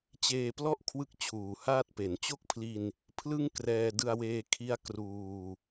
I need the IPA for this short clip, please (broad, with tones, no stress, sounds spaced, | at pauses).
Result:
t͡ɕ eː˧ p l ɔ˥˩ ʔ kʰ w ɯ˦˥ k̚ t͡ɕʰ uː˨˩ h aː˥˩ t̚ p e˩˦ n t͡ɕ o˥˩ k̚ pʰ l i˧ n | pʰ l ɯ˥˩ ŋ k r ɛː˧ d ɯ˧ a̯ w eː˧ kʰ i˦˥ a̯ k r uː˧